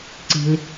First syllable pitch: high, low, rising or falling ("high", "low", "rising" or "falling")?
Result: low